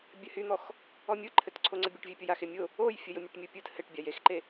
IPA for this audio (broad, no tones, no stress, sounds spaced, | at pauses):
bʲ ɘ h y n̪ ɔ x | ɔ mʲ ɯ ǃʰ ɘ t ǀʰ o ŋ͡ǀ ə bʲ o ʈ vʲ e pʲ o j a x e mʲ ʊ | o j fʲ ə j ʊ mʲ ʊ ʈ mʲ ɯ pʲ ɯ t h ɘ ʈ bʲ a j e x ǃ e